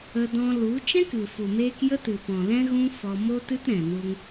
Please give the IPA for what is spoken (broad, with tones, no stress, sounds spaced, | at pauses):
ə˧ d ɔ̃˧ l u˨˦ t͡ʃ ɛ̃˦ k ɨ˨ f u˨ m eː˧ k j ə˦ t ɨ˨ p ɔ̃˨ l ɛ̃˦ ɣ ũ˦ f ɔ˧ m o˦ t ɨ˦ t ɾ ɛ̃˨ n u˧ ŋ